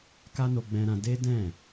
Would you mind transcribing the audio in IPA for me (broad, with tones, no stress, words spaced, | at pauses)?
ka˦no˧ɡ͡bɛ̃˧ɾã˧ de˦ dɛ̃˦˨